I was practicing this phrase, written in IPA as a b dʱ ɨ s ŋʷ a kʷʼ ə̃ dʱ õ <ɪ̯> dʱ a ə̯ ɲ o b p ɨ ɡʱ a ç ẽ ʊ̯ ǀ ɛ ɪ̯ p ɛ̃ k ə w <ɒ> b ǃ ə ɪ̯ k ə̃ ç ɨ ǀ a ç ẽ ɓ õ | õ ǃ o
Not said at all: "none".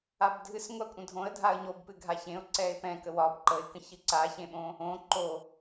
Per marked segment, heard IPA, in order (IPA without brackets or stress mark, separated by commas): ə̯, ɒ